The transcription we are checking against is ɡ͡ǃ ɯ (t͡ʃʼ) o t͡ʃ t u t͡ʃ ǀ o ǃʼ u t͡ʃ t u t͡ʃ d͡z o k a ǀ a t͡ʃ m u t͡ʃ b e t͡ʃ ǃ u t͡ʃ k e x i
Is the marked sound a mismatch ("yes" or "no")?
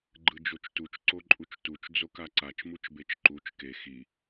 yes